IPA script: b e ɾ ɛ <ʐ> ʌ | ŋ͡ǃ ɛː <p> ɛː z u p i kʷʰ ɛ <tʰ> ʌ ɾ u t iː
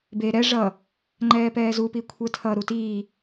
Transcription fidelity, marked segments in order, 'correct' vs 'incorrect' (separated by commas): correct, correct, correct